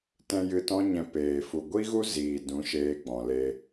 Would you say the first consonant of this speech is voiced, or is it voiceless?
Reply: voiceless